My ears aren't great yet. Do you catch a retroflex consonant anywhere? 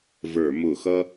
no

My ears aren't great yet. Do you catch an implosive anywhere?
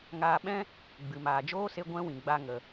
yes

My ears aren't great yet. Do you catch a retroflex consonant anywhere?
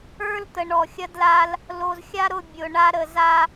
yes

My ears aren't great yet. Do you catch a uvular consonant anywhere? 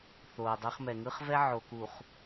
yes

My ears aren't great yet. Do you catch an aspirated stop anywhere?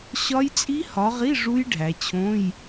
yes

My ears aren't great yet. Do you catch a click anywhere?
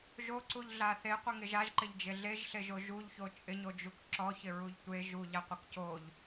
yes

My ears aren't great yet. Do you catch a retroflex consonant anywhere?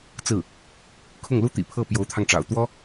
yes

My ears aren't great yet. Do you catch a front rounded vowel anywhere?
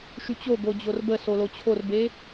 yes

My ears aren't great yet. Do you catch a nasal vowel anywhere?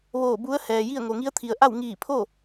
no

